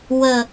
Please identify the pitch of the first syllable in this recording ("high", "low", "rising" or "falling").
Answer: low